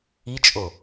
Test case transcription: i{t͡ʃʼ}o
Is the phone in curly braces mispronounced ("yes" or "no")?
no